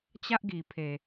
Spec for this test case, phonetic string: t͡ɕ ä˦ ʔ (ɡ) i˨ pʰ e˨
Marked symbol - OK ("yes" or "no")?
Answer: yes